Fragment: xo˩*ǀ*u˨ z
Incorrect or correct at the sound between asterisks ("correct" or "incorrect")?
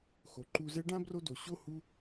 incorrect